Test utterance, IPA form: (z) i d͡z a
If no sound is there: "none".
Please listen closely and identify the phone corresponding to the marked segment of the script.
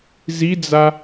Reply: z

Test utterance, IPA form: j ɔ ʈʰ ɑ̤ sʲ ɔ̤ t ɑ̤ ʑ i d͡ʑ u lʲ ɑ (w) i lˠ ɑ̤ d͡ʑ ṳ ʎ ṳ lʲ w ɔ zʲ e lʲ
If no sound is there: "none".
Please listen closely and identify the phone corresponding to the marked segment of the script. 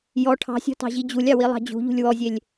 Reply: w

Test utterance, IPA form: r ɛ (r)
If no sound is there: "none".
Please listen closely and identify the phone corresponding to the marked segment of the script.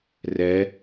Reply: none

